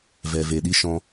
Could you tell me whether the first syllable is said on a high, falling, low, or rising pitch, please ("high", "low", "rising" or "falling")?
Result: low